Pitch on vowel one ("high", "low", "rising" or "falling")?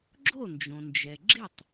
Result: falling